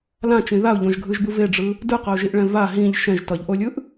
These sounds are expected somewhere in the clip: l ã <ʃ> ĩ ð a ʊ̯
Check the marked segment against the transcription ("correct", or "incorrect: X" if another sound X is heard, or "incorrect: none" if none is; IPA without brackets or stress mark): incorrect: t͡ʃ